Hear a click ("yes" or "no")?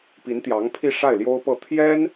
no